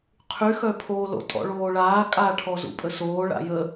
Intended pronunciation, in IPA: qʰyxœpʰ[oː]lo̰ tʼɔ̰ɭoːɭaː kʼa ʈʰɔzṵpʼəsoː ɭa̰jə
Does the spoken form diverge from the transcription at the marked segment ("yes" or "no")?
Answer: no